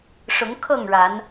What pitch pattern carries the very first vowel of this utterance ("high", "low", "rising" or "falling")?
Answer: rising